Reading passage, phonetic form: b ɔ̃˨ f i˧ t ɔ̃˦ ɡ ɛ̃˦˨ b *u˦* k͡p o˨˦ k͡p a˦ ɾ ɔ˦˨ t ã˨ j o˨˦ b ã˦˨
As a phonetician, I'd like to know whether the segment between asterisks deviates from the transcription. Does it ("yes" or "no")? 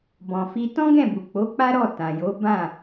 yes